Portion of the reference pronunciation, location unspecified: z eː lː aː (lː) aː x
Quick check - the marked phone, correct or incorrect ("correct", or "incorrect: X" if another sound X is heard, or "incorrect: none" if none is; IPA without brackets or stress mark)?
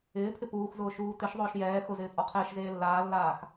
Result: correct